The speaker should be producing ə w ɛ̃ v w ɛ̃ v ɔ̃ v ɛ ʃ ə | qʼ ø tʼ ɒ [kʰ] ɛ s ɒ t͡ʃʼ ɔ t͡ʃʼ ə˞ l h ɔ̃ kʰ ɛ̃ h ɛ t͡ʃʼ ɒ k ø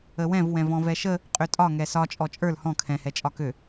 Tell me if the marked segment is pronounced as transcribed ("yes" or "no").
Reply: no